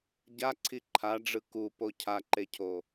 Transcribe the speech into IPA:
ɟ a ǀʰ i ǃʰ a ɖ͡ʐ ɯ k u p o cʰ a ǃ e cʰ o

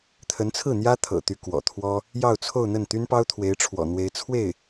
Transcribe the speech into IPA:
t̪ʰ ə˧˥ n t͡sʰ ɹ̩˥˩ n̪ j ä˥ t̪ʰ ɤ̰˨˩ t̪ y˧˥ k w ɔ̰˨˩ t̪ʰ w ɔ˥ | j ɑ˥˧ ʊ̯ t͡sʰ o˥˧ ʊ̯ n̪ ə˥˩ n t̪ y˥ n p ɑ˥ ʊ̯ t̪ʰ w e˧˥ ɪ̯ ʈ͡ʂʰ w ɔ̰˨˩ n̪ w e˧˥ ɪ̯ t͡sʰ w e˥˩ ɪ̯

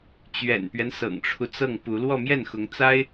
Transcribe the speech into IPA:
t͡ɕ ɥ ɛ̰˨˩ n p ɥ ɛ˦ n s ɤ̰˨˩ ŋ ʈ͡ʂʰ u˦ t͡s ɤ˥˩ ŋ p u˧˥ l w ɔ˥˧ m j ɛ˥˩ n x ʊ˧˥ ŋ t͡s a˥ ɪ̯

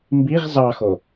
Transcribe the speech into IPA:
m b i ʁ z ɑ x o

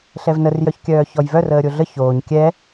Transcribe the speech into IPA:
ɬ ɛ v n ə r j œ ç kʲ œː ç ɔ j v œ r əː ɾʲ o ɮ ə ç oː ɲ kʲ ɛ

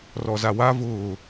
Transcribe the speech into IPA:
r ɔ z a w a v ʊː

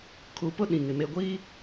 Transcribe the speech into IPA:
kʰ u˨ p ʊ˦ ɗ ĩ˨ ŋ ɪ˨ m e˨ ɡʷ iː˦

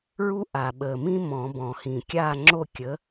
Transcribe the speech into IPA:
ɹ u˥ ʔ a˨˩ ɓ ə˨˩ m ĩ˥ m ɔ̃˨˩˦ b ɔ̃˨˩ h ĩ˨˩ kʲ a˥˨ ŋ͡ǁ o˥˨ kʲ ə˨˥

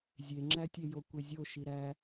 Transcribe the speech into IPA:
zʲ e ŋ͡ǁ æ tʲ e j o kʷ e zʲ o ʃ i ɾ æ

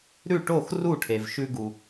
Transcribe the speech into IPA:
ɾ ʉ˥˩ ʈ o˥˩ x r u˥˩ ʈʰ e˩ v ʃ ʉ˧ ɡ u˩

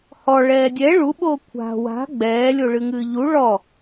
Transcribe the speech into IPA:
h ɔ ɭ ɛː dʲ ɛ ɭ u ɓ oː kʷʰ a̤ w a̤ ɡ͡b ɛː lʲ o ɭ ɨ ŋ ɨː ʎ u ɭ ɔ

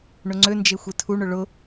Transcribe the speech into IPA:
ɳ ʊ ŋ͡ǀ ø n d͡ʒ e xʷ e tʰ u ɳ ʊ ɭ ʊ

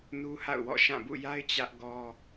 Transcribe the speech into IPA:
n u˦ h a̰˦˨ ʊ̯ w ɔ̰˦˨ ʃ ã˦˨ b ṵ˦˨ j a˦ ɪ̯ t͡ɕ ä˦ ʔ ɡ ɔ˦

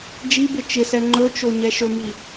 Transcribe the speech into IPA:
d͡ʒ i b ɪ t͡ʃ ɪ s ɛ ŋ͡ǃ ɵ t͡ʃ o ɲ ɛ ʃ ɵ m i

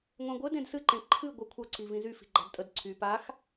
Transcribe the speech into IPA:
ŋʷ ɛ̃ ɡʷ ɘ d ẽ d s ɨ ǃ ẽ ǃʰ ɨ ɡʷ ə kʷʰ ʌ ǀ i v ĩ z y f i̤ ɡ͡ǃ a̤ d tʼ ə d ǀʰ y p a x

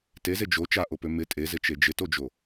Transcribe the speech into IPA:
t e z e d͡ʒ o t͡ʃ a ʔ o p ø m ɪ tʼ e z ɪ t͡ʃ e d͡ʒ ɪ t o d͡ʒ o

